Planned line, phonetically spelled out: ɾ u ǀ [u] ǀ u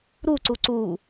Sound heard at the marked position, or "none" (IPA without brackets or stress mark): u